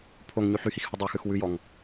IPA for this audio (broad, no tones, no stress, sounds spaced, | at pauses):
pʰ o ŋ ɲ ʉ ħ y h i x h ʉ dˤ ø x ʉ x w ʉ j ɔ ŋ